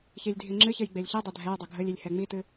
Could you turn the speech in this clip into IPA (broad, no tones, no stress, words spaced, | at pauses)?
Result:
çilʲdʱiŋ͡ǁɨçɨj ɡ͡belʲçɨdˤɛ dʱɛjdˤɵ ɡʱɵlʲilʲ hɛŋ͡mitɨ